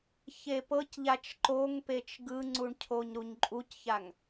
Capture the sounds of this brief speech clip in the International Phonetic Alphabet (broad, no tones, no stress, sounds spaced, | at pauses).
ç e p ɤ c ʎ a t͡ʃ ǃ o ŋ p e t͡ʃ ɡ ɯ ŋ͡ǀ u ɳ cʰ o ɲ ɾ u ɲ ǃʼ u c ç a ŋ